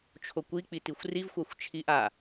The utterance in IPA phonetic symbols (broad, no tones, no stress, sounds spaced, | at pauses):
t͡ʃʰ o kʷ i k͡p i t i xʷ r i v xʷ a xʷ t͡ʃʰ i ʔ a